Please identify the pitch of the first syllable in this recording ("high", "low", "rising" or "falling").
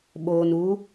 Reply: low